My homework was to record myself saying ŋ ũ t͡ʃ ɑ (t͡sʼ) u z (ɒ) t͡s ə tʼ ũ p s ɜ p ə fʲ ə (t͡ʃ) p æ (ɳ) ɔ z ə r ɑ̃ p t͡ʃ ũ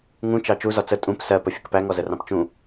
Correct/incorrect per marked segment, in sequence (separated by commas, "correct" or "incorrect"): incorrect, correct, incorrect, incorrect